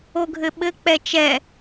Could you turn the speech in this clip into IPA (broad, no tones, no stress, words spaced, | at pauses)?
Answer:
oɡʱɘɓɘ k͡pɛt͡ʃɛ